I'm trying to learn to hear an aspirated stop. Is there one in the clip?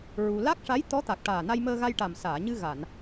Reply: no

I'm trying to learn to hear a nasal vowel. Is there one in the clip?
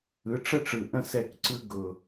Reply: yes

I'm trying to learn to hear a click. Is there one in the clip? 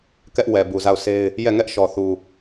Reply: no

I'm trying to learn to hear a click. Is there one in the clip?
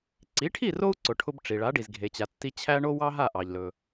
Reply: yes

